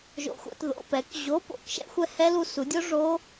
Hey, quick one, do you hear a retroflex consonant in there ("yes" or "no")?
yes